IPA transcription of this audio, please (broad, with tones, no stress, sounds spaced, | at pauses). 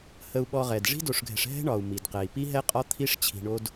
h ə˨ u̯ ɓ ɔ˨ ʁ ɛ˩ d ʐ i̤˥ d o˨ ʂ ɡʱ ɛ̤˨ ʂ ɦ ɛ̤˦ ɳ ɒ˩ u̯ m i˩ d q ɛ˩ i̯ p i˦ ɦ ɛ˦ qʼ ɒ˦ t̪ʰ i˦ ʂ t͡ɕʰ i̤˨ ɳ o˦ d